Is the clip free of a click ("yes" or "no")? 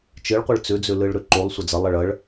no